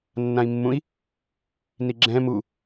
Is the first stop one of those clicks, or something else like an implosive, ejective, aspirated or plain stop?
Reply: click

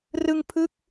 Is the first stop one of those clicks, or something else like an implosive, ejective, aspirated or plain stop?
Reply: aspirated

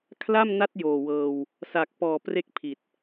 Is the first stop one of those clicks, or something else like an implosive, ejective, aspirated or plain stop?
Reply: aspirated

